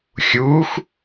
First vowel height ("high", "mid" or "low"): high